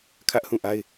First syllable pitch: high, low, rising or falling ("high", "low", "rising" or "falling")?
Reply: high